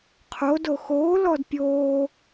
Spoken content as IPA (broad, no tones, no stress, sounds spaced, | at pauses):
qʰ o d o x oː l ɔ d pʲ oː